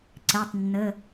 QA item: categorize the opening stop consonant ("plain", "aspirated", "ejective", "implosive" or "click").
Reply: click